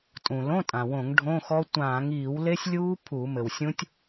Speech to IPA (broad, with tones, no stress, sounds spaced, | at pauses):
tʼ ũ˩ l õ˧˥˧ tʼ ã˩ w õ˧˩˧ ŋ ɖʱ õ˧˥˧ x ɔ˦˥ tʷ ãː˧˩˧ ŋ iː˧˩˧ w l e˦˥ sʲ lʲ uː˦˥ pʰ u˧˩˧ m ɘ˩ w sʲ ũ˦˥ tʲ